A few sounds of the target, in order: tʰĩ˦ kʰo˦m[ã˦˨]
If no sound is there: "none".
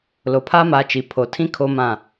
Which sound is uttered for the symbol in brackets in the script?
ã˦˨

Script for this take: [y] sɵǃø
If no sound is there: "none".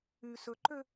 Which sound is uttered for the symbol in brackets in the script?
y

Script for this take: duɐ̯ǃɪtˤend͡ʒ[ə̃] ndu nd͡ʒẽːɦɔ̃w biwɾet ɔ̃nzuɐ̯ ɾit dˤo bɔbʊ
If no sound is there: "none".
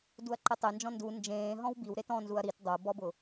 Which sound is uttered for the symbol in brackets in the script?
ɔ̃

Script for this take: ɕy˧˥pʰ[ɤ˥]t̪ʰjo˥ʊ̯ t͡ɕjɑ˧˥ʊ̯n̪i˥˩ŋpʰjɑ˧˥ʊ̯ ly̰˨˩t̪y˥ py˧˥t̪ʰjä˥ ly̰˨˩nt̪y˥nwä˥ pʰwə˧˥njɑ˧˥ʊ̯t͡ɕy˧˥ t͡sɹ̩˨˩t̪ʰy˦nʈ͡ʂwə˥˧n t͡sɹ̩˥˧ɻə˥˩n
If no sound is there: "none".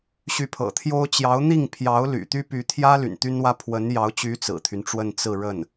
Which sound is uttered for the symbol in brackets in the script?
ɤ̰˨˩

